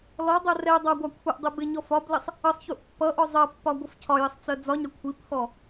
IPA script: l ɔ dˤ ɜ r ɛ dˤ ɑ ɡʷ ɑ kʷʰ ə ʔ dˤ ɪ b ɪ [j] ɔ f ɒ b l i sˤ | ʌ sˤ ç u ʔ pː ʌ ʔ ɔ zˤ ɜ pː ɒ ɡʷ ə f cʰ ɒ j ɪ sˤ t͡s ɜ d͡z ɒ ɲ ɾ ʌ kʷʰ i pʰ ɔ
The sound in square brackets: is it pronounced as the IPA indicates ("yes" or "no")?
no